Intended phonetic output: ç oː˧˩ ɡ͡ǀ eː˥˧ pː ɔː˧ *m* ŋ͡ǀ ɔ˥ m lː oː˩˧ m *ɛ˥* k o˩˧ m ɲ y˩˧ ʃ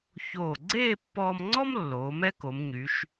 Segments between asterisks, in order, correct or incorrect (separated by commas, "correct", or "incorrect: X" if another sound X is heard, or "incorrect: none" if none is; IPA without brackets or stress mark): correct, correct